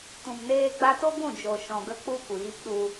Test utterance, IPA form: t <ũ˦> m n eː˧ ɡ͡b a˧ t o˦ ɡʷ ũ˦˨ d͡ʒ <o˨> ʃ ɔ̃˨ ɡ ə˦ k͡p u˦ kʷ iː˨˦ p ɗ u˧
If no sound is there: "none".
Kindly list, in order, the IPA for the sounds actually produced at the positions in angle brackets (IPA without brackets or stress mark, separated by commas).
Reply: ũ˨, o˨